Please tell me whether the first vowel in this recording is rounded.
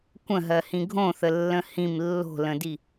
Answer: no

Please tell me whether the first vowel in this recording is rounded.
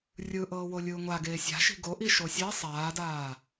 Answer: no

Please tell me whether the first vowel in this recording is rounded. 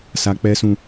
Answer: no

